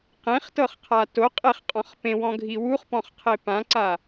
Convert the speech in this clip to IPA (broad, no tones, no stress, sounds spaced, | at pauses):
q ẽ χ t ɤ χ qʰ a t o qʼ e χ qʼ ɔ̃ χ p ẽ w ɔ̃ ɡʱ i w u χ p ɔ̃ χ qʰ e p ã ǀ a